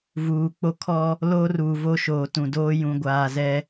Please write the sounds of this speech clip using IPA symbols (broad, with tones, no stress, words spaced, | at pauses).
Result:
vuː˨k͡po˦ kʰɔ˦ | loː˦ruː˨ vo˦ʃoː˨tũ˨ doː˦jũ˨ɡʷaː˨ zɛ˦